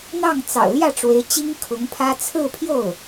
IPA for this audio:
n̪ ɑ˥˩ ŋ t͡s ɑ̰˨˩ ʊ̯ l j ä˥˩ ʈ͡ʂ w e˧˥ ɪ̯ t͡ɕ i˥ ŋ kʰ ʊ˧˥ ŋ pʰ ä˥ t͡sʰ ɹ̩˥˧ pʰ j o˥˩ ʊ̯

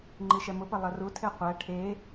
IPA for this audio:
ŋ͡ǃ i ʃ ɛ m ʊ p ɐ lˠ ɐ r u tʰ e qʷ æ ʈʰ e

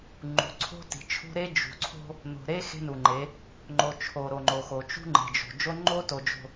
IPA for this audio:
ŋ͡ǃ ṳ˨ ǀʰ o̤˦ t i̤˨ t͡ʃʰ ṳ˦ ɾ e˦ d͡ʒ ṳ˨ ǀʰ o̤˦ | n o̤˨ ɾ e˦ x e̤˦ n u˨ ŋ͡ǃ e˨˦ | ŋ͡ǃ o˨ t͡ʃʰ o˨ ɾ o˨ ŋ͡ǃ o˨ x o˨ t͡ʃ ṳ˦ ŋ͡ǃ e̤˨ d͡ʒ o̤˨ d͡ʒ o˦ ŋ͡ǃ o˦ t o˨ d͡ʒ o̤˨

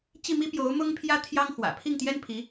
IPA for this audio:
t͡ɕ i˥˩ m i˥ p j o˧˥ ʊ̯ m ʊ˥ ŋ pʰ j ä˥ t̪ʰ j ɑ˥ ŋ x w ä̰˨˩ pʰ i˥˩ ŋ t̪ j ɛ˥ n pʰ i˧˥

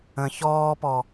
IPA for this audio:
ə̃ ç ɔː p ɔ

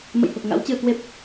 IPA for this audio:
m ə̰˧˨ j h o˨˩ k̚ ŋ a̰˧˥ w t͡ɕ ɨ˧ ə̯ k w e˦˥ p̚

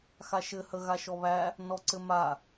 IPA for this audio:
x a ʃ ɘ h ə ɣ a ʃ ɔ β æ | n ɔ ǀ ɘ m a

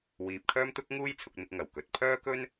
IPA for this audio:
w iː˨ p̚ kʰ œː˥ m t̪ ʊ˥ k̚ ŋ uː˥ j t͡sʰ ʊ˧ k̚ n̪ ɪ˧ k̚ ŋ ɐ˨˩ w k ɵ˨ t̚ pʰ œː˥ k ɵ˥ n

